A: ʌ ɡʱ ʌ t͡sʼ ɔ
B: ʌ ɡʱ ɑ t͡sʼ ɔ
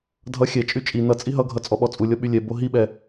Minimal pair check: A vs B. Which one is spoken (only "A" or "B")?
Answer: A